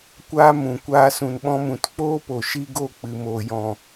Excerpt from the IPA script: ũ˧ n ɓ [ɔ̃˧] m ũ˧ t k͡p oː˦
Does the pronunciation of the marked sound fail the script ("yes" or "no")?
yes